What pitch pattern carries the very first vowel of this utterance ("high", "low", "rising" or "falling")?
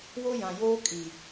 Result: high